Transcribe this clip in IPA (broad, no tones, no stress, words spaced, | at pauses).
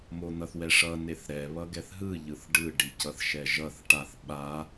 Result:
mon̪ʌθwɛʂʌ neθɾɛ βʌɡɛθɦɯ ʎɯθɖɯ ɖicʌθʃɛʒʌθ ʈaθ ɓa